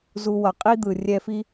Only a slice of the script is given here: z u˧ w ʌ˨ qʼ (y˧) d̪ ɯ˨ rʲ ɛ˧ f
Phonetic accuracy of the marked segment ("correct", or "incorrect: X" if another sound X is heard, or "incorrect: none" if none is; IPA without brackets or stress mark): incorrect: i˧